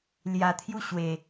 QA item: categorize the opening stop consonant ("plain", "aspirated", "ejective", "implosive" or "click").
aspirated